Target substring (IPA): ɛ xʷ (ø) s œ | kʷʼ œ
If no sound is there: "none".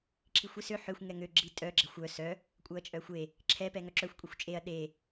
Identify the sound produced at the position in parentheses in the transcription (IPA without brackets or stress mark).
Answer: œ